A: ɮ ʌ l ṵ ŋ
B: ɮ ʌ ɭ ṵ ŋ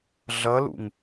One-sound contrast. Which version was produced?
A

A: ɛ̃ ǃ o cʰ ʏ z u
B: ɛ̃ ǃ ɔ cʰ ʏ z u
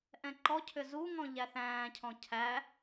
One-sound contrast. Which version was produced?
B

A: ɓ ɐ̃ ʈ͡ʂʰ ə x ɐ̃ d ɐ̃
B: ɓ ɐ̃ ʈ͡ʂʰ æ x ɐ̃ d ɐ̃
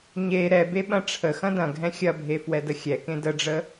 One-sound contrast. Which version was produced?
A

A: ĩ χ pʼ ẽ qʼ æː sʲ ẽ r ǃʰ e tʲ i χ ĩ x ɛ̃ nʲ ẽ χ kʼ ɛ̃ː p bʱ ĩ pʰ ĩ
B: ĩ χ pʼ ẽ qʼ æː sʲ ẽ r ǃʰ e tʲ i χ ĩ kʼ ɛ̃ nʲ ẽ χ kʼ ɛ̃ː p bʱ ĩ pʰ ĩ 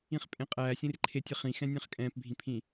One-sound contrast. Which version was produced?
A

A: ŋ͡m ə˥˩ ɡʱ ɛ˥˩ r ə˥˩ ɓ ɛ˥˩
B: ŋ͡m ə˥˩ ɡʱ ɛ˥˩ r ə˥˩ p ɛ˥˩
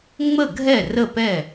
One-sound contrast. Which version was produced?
B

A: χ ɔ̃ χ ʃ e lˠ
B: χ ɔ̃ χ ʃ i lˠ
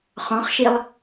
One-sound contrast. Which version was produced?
B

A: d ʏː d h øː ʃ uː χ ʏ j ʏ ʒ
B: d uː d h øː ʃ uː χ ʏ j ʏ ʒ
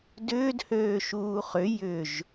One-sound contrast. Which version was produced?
A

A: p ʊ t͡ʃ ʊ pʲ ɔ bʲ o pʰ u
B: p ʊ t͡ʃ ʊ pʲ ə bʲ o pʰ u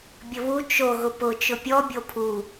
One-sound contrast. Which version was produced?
A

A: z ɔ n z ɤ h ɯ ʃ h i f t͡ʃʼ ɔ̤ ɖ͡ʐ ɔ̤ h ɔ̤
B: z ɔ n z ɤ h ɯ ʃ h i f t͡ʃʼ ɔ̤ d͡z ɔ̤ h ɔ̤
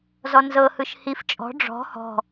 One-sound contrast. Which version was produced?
A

